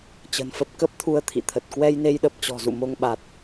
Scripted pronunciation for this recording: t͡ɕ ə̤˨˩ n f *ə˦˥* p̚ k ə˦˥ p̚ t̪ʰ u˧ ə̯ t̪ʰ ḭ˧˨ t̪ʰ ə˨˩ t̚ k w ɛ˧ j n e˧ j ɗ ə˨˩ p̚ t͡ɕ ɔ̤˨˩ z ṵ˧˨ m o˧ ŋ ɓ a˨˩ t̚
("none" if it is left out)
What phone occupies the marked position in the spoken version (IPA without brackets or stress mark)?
ə˦˥